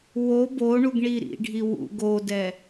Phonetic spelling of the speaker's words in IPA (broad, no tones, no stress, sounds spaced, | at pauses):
w o b o ɳ u ɡ ɳ i ɾ ḭ ɖʱ i w ṵ ɡ o d ɛ